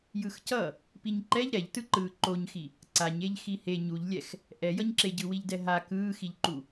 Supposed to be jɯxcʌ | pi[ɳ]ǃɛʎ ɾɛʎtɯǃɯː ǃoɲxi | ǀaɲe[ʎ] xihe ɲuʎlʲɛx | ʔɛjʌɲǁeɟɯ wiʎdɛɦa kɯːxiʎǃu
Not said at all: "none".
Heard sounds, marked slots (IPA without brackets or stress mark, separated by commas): ɲ, ʎ